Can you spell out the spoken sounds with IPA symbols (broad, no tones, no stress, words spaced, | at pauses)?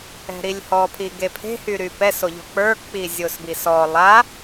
ɛ̤ɾilʲhɔ pʰiɡepʰe̤ hyɾypɛs oʎɔ̤k͡pə˞ k͡pizʲosbisɔ lˠa